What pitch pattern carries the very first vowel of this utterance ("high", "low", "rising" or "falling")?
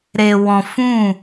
low